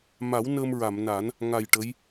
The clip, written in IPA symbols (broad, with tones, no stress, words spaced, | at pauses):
ma˨˩˦w nəː˧mɹa˨˩˨mna˨˩˦n | ŋa˨˩j ʈə˧˥j